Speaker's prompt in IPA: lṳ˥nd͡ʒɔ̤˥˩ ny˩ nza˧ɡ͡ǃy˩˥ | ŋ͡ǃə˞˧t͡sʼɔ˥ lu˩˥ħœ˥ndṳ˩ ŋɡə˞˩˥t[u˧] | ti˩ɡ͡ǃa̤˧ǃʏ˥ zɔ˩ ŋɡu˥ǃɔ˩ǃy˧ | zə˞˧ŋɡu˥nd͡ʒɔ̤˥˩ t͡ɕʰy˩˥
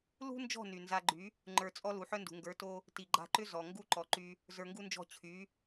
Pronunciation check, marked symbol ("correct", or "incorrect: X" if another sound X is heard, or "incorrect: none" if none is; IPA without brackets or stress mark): incorrect: o˧